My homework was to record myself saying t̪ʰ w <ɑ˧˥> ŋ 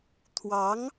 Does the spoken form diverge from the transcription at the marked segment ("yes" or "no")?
no